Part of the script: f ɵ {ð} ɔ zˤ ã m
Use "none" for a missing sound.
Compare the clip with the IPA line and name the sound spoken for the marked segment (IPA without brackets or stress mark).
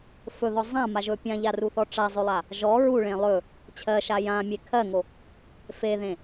ð